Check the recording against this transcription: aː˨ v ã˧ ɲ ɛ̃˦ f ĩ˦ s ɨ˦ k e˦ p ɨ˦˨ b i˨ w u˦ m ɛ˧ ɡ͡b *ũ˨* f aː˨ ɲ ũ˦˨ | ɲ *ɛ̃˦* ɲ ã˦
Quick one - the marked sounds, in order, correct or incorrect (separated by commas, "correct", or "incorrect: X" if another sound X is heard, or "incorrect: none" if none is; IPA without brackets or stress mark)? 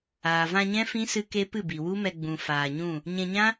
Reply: correct, incorrect: ɛ̃˧